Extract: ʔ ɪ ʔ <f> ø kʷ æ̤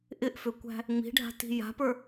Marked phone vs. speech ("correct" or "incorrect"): correct